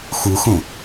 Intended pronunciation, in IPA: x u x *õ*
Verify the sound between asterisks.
correct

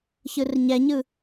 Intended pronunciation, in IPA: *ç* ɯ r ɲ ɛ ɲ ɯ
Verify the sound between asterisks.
correct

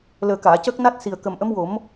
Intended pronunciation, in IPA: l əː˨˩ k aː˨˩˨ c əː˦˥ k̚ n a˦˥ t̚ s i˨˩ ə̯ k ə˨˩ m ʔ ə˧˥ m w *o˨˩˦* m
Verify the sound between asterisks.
correct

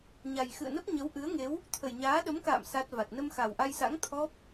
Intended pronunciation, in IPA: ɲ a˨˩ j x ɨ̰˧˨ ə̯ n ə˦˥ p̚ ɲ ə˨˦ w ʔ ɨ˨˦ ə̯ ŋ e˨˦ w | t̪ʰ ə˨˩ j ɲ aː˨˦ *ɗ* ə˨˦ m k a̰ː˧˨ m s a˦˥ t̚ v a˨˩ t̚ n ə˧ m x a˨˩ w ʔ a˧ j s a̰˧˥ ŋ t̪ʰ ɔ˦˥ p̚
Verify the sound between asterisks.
correct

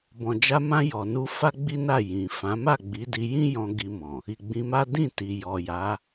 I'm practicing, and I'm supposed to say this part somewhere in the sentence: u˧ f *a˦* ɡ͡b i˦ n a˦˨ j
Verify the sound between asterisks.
correct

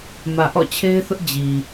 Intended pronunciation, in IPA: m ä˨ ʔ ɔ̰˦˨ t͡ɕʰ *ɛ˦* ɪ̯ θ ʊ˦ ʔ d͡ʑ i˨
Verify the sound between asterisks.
incorrect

